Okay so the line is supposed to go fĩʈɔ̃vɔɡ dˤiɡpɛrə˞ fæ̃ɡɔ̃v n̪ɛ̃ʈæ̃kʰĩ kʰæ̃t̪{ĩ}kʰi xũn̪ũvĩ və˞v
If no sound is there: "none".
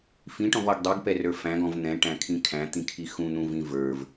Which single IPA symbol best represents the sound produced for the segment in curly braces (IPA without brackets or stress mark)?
ĩ